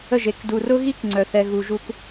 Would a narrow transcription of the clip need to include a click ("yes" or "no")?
yes